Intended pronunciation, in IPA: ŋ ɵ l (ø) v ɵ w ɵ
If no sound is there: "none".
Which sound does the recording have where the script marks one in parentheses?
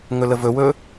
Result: ə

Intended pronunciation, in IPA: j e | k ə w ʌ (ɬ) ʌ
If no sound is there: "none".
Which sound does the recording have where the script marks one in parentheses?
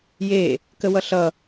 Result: ɬ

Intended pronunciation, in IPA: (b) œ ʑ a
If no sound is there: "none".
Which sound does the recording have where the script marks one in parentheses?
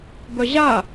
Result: b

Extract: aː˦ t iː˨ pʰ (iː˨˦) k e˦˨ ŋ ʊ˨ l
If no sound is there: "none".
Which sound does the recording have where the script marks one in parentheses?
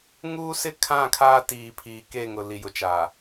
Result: iː˨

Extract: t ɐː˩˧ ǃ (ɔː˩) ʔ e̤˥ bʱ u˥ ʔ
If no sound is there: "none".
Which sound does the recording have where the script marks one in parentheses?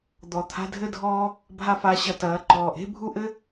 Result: ɔː˩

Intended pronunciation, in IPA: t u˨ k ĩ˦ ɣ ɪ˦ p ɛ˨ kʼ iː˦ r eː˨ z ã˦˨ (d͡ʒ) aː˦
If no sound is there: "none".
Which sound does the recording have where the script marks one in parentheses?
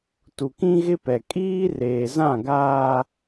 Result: ɡ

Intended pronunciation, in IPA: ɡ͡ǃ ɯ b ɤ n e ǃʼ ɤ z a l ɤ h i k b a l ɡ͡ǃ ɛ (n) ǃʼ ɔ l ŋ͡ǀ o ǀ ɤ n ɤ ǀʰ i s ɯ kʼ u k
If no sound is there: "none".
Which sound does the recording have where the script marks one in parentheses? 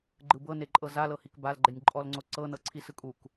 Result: nʲ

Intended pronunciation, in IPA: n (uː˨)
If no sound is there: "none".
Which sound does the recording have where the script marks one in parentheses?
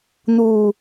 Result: uː˨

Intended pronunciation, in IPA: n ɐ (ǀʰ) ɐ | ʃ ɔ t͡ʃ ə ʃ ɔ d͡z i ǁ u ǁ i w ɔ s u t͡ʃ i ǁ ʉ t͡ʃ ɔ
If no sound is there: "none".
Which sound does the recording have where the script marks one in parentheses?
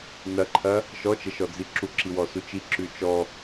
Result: ǃʰ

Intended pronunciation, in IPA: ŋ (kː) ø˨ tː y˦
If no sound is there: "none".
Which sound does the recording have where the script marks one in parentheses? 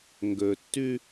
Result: ɡ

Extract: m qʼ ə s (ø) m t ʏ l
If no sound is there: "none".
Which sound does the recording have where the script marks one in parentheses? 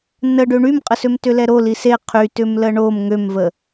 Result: ø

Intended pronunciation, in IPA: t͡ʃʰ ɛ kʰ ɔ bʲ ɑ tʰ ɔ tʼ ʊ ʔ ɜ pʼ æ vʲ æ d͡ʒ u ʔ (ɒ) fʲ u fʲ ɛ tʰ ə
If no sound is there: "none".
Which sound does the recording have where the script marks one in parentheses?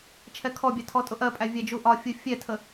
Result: ɒ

